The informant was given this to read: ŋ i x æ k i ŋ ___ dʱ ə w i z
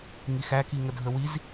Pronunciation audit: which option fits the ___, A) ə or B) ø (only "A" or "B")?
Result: A